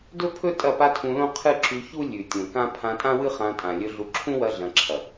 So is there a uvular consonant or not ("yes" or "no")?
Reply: yes